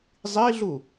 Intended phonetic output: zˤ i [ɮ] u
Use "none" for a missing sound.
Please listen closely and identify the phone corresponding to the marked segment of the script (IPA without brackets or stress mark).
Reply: ɮ